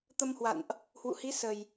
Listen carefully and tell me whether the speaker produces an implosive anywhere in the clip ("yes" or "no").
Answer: no